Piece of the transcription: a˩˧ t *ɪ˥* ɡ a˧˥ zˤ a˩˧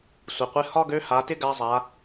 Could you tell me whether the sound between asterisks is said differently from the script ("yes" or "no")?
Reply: no